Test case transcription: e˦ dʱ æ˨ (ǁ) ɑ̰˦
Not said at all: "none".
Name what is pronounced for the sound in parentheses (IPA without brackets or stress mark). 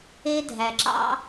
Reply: ǁ